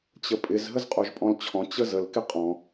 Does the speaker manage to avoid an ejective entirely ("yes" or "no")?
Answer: no